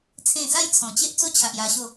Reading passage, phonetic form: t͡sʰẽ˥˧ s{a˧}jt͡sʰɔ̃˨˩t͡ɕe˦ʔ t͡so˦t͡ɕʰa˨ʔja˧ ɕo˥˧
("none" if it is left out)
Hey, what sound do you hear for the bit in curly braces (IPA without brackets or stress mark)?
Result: a˥˧